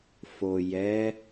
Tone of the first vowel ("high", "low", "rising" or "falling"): low